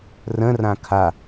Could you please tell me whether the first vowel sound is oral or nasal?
nasal